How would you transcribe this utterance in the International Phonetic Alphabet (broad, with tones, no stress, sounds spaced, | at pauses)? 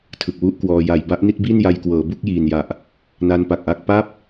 tʰ ɯ˨˩ k̚ w u˦˥ ʔ k w ɔː˧ j a˨˩ j b a˦˥ ʔ n i˥˩ t̚ b i˥˩ n j a˧ j k w ɤː˩˦ b u˥˩ k̚ j iː˨˩ n j a˨˩ ʔ | n a˦˥ n p a˨˩ k̚ ʔ a˥˩ k̚ p a˦˥ p̚